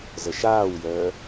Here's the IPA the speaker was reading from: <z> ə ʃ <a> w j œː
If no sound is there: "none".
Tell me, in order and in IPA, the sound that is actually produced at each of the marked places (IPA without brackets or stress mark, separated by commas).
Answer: z, aː